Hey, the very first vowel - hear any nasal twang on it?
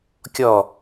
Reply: no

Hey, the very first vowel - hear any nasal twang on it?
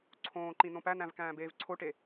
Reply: yes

